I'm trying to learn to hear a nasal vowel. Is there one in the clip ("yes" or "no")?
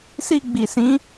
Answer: yes